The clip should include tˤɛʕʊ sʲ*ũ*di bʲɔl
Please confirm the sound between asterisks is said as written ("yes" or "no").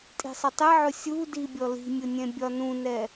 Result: no